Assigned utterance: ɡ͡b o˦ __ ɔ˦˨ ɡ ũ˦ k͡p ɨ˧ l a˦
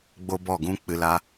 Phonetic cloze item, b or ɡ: b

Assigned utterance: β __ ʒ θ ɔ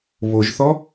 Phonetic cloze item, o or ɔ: o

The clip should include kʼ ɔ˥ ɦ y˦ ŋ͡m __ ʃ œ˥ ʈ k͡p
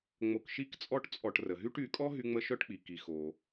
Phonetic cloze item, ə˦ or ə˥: ə˦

